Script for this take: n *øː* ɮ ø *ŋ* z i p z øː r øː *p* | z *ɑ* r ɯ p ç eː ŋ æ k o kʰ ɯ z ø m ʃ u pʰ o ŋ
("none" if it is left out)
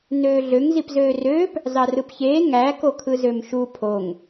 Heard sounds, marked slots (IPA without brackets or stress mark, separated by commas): øː, ŋ, p, ɑ